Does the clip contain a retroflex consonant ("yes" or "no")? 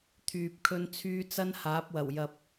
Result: no